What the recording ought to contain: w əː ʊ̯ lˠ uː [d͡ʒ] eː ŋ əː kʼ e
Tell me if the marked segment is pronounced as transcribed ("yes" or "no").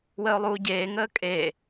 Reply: no